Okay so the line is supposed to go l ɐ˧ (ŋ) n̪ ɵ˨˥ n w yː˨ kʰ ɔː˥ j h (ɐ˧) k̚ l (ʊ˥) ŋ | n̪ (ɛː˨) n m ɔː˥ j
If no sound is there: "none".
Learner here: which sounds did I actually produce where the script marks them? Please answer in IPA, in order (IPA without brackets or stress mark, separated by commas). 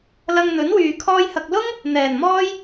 ŋ, ɐ˧, ʊ˥, ɛː˨˩